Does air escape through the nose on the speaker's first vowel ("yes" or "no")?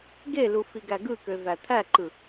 no